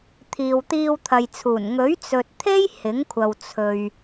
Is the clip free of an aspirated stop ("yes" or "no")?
no